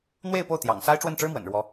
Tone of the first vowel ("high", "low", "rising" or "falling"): falling